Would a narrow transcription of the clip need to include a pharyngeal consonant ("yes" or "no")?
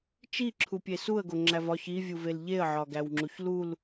yes